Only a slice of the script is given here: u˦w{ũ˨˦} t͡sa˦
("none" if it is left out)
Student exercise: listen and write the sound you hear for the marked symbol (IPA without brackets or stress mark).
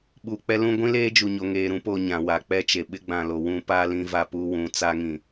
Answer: ũ˨˦